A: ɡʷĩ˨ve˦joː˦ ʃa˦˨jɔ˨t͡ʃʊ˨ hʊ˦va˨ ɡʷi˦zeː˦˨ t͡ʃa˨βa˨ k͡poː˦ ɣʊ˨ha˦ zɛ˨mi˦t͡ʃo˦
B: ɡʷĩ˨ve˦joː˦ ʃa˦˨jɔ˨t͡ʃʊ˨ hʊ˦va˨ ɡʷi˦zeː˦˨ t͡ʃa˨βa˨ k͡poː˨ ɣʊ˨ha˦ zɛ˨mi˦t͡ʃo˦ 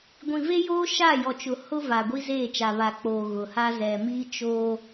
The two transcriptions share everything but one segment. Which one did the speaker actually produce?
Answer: B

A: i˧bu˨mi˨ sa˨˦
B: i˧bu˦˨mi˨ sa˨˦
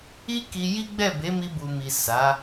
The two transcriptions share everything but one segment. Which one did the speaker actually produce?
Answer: A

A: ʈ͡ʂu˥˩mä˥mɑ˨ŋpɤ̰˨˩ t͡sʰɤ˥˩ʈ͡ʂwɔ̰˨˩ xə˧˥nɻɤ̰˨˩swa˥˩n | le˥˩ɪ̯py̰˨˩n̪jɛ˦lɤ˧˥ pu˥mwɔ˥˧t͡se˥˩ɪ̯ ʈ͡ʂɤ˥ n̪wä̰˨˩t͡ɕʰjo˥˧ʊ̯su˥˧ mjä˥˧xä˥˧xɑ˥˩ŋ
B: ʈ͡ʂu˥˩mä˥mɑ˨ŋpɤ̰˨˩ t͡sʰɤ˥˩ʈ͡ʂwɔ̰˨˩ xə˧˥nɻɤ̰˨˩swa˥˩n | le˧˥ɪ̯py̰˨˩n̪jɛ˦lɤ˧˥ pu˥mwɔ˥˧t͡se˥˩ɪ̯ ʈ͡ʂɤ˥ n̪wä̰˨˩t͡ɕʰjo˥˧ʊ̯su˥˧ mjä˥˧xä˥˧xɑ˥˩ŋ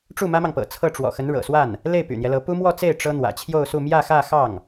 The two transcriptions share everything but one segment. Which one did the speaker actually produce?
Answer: A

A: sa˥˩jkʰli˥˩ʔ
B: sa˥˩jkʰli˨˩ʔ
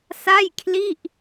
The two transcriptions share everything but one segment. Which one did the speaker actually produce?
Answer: A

